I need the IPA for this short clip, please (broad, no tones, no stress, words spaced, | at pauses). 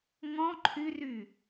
ŋɔ̃ ǃʰyry